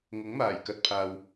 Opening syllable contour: rising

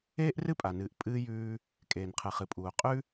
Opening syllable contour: high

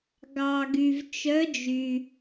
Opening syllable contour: low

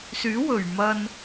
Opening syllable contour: rising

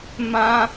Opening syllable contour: high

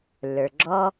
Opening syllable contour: low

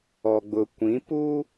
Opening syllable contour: low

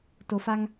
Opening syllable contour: low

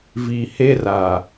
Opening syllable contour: low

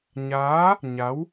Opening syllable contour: rising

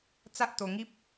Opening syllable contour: high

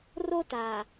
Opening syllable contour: high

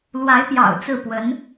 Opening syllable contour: rising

